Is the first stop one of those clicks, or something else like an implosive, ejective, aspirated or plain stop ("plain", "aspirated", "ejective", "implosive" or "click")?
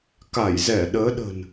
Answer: plain